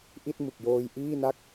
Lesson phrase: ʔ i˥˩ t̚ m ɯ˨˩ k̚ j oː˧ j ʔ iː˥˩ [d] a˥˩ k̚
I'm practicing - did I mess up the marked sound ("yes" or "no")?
yes